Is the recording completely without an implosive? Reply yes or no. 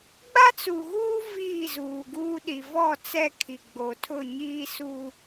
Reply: no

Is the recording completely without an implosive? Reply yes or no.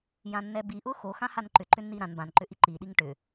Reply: no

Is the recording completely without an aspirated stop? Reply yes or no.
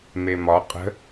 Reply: yes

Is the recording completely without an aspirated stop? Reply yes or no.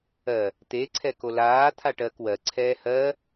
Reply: no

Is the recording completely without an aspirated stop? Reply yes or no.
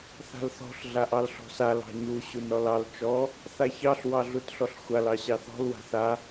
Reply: yes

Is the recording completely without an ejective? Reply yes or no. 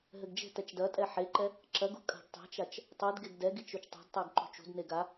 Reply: no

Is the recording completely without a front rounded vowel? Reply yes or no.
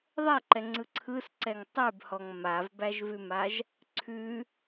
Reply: yes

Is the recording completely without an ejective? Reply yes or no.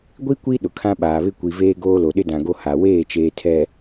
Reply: yes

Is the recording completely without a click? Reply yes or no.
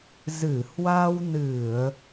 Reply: yes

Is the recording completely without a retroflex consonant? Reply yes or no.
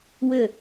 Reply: yes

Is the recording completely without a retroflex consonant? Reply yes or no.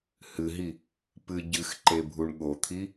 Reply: no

